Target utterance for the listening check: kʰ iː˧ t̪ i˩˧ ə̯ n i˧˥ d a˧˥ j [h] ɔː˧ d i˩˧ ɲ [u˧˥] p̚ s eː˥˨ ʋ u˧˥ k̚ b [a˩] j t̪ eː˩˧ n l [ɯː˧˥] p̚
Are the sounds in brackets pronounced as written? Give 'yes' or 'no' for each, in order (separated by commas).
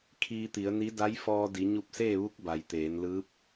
no, no, yes, yes